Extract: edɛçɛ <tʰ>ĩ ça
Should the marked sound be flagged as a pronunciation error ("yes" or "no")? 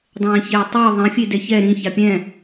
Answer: yes